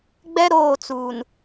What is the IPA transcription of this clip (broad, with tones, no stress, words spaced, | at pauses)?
ɡ͡bɛ˦ ɾoː˦˨t͡suː˨n